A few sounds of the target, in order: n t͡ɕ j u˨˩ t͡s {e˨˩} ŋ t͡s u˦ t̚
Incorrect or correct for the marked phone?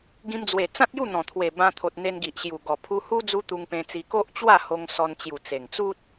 correct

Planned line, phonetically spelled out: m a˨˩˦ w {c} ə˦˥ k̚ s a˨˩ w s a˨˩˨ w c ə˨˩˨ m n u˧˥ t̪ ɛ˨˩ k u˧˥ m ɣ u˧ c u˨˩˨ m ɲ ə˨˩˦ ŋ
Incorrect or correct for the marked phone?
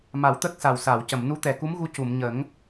incorrect: t̪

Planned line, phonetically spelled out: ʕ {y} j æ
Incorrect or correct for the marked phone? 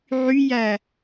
correct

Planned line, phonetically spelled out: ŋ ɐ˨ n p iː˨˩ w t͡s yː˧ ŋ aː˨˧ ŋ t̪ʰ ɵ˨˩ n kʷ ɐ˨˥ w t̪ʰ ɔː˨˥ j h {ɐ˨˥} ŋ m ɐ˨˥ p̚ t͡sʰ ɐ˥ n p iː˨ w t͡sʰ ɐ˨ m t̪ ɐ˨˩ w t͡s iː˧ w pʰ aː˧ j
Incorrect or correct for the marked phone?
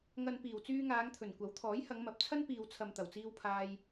incorrect: ɐ˨˧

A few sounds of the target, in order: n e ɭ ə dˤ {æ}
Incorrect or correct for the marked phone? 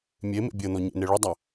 correct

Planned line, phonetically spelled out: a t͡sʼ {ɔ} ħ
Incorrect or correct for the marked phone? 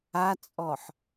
correct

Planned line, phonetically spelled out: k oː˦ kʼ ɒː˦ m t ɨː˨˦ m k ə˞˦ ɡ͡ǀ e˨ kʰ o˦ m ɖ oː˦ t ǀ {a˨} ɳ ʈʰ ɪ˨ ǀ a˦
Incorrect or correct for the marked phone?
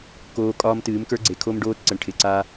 incorrect: ə˨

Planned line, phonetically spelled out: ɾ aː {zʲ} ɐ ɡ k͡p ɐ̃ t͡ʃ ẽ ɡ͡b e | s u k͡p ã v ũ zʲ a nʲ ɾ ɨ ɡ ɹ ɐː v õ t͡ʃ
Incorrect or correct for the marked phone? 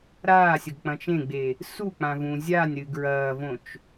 incorrect: sʲ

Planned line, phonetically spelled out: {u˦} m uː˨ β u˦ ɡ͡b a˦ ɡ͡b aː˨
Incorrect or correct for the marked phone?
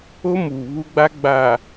incorrect: o˦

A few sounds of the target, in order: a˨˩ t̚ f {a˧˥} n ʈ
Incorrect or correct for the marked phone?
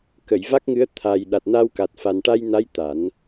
incorrect: a˨˩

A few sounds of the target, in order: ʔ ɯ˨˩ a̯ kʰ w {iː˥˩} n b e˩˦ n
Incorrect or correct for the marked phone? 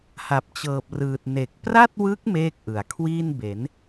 correct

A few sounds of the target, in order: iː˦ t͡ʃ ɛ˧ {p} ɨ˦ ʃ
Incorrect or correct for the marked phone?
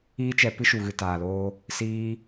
correct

